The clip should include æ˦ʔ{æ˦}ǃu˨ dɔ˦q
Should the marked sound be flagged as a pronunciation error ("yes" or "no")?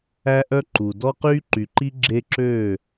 yes